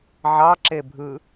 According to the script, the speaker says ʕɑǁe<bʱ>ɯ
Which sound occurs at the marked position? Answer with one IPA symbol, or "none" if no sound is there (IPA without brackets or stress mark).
bʱ